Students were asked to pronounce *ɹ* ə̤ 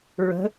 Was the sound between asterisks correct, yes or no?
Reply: yes